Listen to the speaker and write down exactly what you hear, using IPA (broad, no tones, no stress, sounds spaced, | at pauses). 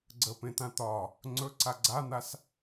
ɡ͡ǀ ə p ẽ t̪ ã t̪ ɒ | ŋ͡ǀ ɵ ǀ a ɡ͡ǀ a n̪ a s